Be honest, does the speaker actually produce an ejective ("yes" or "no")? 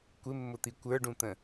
no